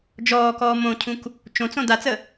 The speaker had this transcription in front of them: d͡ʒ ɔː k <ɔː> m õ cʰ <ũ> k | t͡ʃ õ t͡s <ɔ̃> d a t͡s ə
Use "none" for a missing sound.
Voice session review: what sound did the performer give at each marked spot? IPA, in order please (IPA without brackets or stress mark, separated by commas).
ɔː, ũ, õ